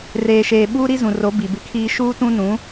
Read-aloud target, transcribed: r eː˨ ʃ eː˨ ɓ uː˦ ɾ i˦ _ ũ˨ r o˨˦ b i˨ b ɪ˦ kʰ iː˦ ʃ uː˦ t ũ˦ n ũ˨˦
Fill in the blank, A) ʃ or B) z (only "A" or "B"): B